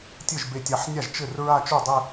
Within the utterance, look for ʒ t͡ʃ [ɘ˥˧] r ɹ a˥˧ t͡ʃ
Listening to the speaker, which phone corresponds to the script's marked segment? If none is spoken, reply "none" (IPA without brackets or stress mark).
ɘ˥˩